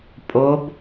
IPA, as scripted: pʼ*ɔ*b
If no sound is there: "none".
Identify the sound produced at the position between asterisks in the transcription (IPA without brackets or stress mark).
o